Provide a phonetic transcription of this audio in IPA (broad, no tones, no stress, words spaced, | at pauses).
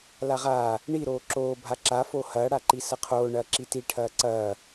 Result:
laʁaː | ɳi ɾoːǁoː bʱaǁa foːhɐː ɽaǃisɐqʰoː ɳɐːǁiti ʈʰɐːǀɐː